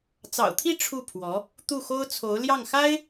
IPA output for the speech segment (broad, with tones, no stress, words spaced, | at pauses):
t͡sɑ̰˨˩ʊ̯t̪ʰi˥˧ ʈ͡ʂʰu˥˩pʰwɔ˧˥ | t̪u˥˩xo˥ʊ̯t͡sʰo˧˥ʊ̯ ljɑ˥˩ŋxa˥ɪ̯